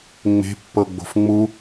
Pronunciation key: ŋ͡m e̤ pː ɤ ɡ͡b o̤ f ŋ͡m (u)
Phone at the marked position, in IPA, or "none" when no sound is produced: u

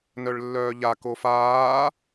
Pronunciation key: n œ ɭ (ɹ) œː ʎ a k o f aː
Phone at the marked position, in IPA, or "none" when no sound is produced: lː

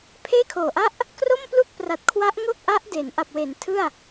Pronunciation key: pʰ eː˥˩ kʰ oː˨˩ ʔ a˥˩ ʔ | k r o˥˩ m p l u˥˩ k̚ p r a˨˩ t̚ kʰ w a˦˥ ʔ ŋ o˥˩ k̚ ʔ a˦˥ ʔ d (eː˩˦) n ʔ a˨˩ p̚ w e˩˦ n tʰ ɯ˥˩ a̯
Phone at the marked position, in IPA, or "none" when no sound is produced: eː˩˦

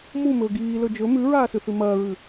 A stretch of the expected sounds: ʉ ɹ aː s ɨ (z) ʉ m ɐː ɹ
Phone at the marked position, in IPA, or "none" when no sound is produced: θ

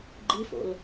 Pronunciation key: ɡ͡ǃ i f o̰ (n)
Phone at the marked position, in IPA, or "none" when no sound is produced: l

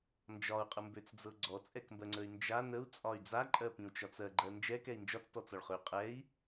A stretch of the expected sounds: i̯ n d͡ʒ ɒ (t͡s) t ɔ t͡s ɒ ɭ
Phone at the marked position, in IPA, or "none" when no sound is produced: t͡s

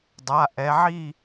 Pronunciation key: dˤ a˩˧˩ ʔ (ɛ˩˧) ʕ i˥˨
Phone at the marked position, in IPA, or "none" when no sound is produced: ɛ˩˧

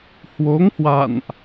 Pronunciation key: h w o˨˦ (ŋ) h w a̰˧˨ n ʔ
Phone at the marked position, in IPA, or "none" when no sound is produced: ŋ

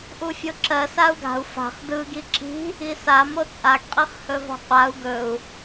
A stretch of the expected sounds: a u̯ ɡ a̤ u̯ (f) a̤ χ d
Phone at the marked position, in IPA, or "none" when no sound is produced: f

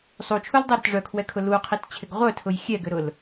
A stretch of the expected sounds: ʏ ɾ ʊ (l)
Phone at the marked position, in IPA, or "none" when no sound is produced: l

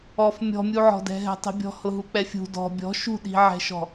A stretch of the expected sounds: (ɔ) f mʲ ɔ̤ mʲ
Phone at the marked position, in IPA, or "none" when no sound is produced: ɔ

